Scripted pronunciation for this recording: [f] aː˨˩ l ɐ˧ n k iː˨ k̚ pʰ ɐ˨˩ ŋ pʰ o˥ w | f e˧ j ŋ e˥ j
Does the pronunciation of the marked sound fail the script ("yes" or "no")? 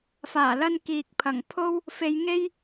no